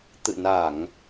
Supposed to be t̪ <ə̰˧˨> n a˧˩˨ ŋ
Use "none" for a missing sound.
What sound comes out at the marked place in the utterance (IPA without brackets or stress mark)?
ɨ̰˧˨